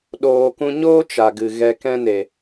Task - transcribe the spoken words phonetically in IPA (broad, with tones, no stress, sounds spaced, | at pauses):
ɗ oː˨ k ũ˧ ɲ oː˦ t͡ʃ a˧ ɡ ɨ˧ ɣ ɛ˧ k ɛ̃˦ n e˨